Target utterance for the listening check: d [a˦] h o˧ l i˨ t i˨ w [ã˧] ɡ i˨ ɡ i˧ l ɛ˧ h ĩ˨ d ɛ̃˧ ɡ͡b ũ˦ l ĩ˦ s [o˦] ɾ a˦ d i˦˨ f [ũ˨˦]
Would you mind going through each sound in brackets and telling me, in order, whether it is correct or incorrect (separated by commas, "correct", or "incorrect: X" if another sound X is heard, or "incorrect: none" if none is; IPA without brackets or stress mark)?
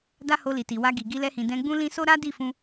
correct, incorrect: a˧, correct, incorrect: ũ˧